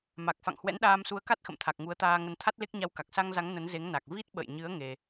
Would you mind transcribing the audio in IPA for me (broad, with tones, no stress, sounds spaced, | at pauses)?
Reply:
m a˨˩ k̚ f a̰˧˨ ŋ h w ɛ̰˧˥ n ɗ aː˧ m s u˨˦ ə̯ k a˦˥ t̚ x ə̰˧˨ m t̪ʰ a˨˩ k̚ ŋ u˨˦ ə̯ t̪ aː˧ ŋ ə˧ n t̪ʰ a˦˥ t̚ l e˦˥ k̚ ɲ a˧ w k a˨˩ k̚ s a˧ ŋ z a˨˦ ŋ n ə˨˦ n z e˨˦ ŋ n a˨˩ k̚ v i˦˥ t̚ ɓ ə̰˧˨ j ɲ ɨ˨˦ ə̯ ŋ e˧